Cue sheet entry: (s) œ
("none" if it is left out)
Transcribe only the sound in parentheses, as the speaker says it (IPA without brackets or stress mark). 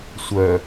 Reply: sʷ